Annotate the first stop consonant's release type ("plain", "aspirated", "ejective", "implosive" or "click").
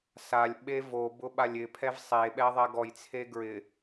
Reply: implosive